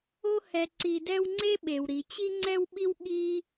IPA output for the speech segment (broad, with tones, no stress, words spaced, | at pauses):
o˦hɛ˨ ǀi˨dɛ˦wŋ͡ǀe˥ɓe˩w ɾi˩ t͡ɕi˦ŋ͡ǀɛ˦wɓi˦w ɠi˥